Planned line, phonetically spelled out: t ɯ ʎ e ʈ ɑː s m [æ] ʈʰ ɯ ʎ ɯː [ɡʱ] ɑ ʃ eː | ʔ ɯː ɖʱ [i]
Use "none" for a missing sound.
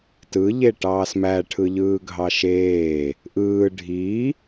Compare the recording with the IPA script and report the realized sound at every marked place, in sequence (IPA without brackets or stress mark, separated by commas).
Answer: æ, ɡʱ, i